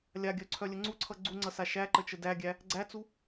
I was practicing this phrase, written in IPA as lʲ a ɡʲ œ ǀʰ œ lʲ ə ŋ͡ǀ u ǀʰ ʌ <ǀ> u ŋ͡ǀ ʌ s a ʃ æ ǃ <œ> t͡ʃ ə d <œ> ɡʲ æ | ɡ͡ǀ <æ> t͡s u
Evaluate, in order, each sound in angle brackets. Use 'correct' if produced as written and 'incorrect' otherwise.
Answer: incorrect, incorrect, incorrect, correct

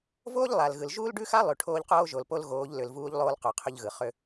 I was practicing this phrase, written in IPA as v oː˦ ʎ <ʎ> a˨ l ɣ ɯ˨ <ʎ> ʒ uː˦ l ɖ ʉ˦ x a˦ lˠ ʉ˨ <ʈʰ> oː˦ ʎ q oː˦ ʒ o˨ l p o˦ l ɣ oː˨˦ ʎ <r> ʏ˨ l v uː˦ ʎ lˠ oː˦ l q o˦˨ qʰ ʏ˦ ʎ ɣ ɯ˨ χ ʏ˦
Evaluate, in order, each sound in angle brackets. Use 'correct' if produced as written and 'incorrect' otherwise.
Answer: incorrect, incorrect, correct, incorrect

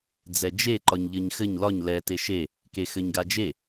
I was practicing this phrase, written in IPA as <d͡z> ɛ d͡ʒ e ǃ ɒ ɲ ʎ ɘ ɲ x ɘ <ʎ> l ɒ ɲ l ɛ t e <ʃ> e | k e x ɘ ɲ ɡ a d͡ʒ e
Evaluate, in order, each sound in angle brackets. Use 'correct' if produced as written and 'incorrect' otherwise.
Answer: correct, incorrect, correct

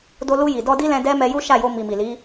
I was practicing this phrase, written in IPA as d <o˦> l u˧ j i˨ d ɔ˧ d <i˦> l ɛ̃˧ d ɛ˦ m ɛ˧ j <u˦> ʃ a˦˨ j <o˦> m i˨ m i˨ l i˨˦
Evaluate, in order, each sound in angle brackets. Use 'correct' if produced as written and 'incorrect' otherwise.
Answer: incorrect, correct, correct, incorrect

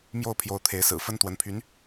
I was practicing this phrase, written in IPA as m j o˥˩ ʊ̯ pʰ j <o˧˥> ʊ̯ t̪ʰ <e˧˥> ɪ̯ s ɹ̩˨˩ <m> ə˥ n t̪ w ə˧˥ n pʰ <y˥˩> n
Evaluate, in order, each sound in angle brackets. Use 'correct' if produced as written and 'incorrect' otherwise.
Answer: correct, correct, incorrect, incorrect

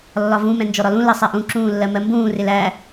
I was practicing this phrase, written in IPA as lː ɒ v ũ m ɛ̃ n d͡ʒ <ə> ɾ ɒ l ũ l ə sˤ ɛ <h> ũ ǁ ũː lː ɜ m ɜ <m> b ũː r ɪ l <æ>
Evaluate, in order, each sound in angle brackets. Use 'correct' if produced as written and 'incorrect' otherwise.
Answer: incorrect, incorrect, correct, correct

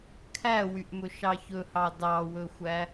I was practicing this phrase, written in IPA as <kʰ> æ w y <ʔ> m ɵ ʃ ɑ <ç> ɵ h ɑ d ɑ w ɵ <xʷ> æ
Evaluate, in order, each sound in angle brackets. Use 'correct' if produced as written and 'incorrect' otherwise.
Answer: correct, correct, correct, correct

